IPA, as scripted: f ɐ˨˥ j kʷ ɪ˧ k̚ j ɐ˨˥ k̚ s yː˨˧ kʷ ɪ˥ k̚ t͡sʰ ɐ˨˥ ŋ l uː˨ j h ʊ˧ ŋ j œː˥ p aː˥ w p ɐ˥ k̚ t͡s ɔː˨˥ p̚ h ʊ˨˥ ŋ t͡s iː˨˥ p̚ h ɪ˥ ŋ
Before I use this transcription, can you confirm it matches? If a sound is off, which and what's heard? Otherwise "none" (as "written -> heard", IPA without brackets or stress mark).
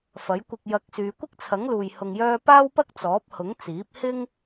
none